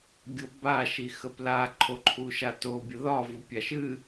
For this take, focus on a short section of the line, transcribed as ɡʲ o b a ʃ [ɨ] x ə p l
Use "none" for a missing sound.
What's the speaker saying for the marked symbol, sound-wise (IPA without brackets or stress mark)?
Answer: i